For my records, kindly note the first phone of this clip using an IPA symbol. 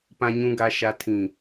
p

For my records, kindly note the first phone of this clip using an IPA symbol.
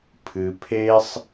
pʰ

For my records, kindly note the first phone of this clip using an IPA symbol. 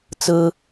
t͡s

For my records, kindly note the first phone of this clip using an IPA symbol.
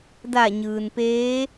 d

